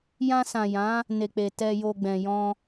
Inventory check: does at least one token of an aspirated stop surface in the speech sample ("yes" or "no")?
no